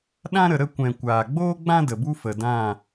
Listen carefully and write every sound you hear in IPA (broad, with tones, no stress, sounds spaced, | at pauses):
ɗ ã˦ ɾ ə˨ ɾ ə˦˨ kʷ ɛ̃˨ kʷ aː˨ ɡ͡b oː˦ ɡ͡b ã˦ d ə˨ b u˦ f ə˨ d ã˦˨